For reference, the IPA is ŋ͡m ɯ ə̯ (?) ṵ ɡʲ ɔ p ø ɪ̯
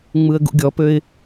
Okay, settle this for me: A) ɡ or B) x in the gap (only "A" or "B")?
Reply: A